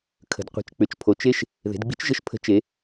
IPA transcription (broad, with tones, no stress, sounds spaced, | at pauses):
kʰ ə̤˩ d qʷ i̤˩ t͡ʃ k͡p ʏ˩˧ t͡ʃ pʰ o˩ t͡ʃ e˥ ʃ | ð e̤˩˧ d ɡ͡b i̤˧˥ t͡ʃ ʒ ə˧ ʃ pʰ ə̤˧˥ t͡ʃ e˩˧